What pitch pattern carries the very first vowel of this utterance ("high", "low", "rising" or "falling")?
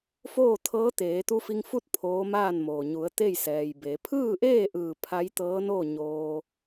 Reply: falling